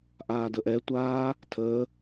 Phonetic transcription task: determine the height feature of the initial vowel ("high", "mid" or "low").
low